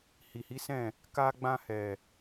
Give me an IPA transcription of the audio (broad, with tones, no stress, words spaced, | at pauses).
hi˨hi˨˦sɛ̃˦˨ | ka˧ ɡ͡bã˧hɛ˨